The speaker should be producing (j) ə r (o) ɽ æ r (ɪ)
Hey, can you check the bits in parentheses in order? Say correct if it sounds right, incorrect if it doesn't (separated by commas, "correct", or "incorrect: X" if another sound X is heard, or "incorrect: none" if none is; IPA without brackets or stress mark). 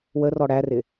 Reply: incorrect: w, incorrect: ɔ, correct